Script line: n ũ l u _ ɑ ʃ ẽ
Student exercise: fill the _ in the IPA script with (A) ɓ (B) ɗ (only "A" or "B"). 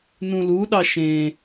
B